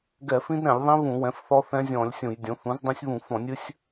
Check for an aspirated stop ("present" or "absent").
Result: absent